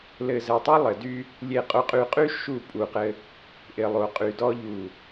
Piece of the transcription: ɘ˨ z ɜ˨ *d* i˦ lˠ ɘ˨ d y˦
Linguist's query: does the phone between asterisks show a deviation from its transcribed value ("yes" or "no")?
yes